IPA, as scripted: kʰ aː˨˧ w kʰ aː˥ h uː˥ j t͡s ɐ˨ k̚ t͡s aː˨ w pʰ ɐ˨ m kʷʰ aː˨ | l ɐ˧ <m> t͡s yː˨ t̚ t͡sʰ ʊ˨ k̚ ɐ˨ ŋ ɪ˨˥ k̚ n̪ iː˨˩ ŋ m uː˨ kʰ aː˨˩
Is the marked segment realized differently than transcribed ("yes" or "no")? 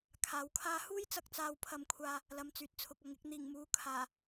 no